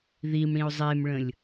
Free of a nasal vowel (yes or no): no